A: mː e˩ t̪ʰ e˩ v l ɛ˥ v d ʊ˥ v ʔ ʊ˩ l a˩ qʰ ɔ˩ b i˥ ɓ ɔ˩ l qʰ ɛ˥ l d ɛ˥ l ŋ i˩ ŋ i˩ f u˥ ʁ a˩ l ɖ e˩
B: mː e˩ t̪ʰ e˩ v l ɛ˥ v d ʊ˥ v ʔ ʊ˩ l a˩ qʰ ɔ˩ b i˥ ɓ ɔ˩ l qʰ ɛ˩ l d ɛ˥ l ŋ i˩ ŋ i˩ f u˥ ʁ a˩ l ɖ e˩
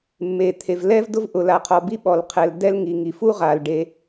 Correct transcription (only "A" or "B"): B